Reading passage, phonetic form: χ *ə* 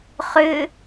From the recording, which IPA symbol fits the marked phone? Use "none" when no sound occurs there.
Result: ʏ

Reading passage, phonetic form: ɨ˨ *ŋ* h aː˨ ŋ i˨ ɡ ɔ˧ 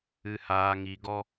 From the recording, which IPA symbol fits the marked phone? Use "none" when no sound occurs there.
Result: none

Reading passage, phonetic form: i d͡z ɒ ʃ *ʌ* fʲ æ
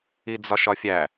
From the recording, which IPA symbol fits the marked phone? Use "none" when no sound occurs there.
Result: ɒ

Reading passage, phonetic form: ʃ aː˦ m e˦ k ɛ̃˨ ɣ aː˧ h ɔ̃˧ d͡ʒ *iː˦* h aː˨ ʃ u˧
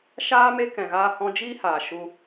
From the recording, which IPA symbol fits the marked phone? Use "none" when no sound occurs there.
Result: iː˦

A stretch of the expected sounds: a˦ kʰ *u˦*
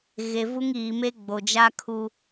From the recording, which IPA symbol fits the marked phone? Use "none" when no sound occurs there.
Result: u˦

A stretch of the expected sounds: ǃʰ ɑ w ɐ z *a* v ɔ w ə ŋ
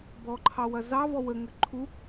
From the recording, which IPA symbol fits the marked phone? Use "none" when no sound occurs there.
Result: ɑ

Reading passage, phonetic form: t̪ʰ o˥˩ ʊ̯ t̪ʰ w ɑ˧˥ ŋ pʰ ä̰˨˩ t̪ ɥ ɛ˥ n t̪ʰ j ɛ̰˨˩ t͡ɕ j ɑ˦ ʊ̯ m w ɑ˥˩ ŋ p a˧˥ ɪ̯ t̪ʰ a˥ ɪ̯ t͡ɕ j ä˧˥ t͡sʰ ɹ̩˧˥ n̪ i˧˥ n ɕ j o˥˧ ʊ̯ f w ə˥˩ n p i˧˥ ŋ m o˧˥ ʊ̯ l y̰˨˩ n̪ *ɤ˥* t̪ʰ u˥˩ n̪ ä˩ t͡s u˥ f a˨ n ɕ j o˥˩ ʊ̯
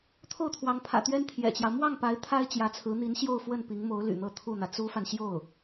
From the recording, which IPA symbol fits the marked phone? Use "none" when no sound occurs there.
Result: ɤ˥˧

